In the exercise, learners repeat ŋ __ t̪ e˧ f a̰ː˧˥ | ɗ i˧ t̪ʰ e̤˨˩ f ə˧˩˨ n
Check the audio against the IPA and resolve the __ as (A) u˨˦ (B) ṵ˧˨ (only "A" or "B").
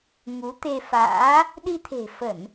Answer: A